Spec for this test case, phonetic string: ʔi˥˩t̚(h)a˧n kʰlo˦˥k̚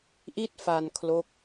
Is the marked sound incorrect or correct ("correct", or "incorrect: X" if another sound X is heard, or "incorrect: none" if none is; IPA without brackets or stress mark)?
incorrect: f